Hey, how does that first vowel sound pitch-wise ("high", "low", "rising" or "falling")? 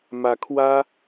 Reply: rising